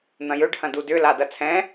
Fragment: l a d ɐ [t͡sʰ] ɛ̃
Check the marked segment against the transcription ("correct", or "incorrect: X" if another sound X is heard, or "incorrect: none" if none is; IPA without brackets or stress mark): correct